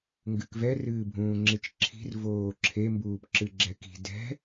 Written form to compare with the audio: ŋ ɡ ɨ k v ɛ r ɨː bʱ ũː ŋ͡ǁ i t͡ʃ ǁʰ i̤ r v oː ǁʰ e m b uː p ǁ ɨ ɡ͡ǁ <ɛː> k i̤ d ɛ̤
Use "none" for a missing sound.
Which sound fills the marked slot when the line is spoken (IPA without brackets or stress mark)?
ɛ